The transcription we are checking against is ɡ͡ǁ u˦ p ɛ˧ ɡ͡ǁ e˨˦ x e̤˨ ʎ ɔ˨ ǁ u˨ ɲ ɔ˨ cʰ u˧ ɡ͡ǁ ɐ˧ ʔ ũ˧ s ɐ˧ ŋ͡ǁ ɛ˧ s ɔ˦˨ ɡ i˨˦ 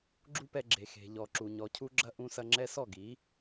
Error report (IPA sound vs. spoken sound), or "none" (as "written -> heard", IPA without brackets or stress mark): e˨˦ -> e˨